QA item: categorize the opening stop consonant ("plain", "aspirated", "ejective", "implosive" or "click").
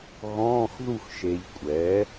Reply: ejective